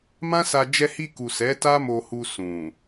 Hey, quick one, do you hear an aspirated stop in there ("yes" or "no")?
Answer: no